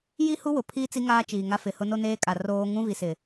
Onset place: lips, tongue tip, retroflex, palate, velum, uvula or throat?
palate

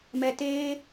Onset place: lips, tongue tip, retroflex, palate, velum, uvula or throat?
lips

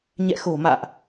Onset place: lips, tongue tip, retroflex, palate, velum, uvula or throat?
palate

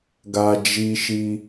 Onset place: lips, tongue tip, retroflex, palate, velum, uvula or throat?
velum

